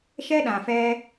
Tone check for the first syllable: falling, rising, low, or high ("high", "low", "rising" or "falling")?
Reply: high